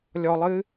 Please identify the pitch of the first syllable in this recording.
low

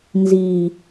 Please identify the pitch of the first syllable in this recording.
low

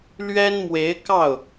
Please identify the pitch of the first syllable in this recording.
high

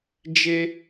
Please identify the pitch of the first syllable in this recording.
high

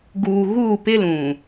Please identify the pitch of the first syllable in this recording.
low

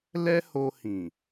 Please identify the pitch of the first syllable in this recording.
high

